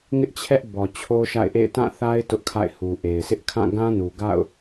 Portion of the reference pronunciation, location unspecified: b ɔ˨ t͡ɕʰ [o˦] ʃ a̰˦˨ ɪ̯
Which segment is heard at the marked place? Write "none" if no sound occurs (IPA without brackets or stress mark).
o˦